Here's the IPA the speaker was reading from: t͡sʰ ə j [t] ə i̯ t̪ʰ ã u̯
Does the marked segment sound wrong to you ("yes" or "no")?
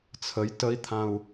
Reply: no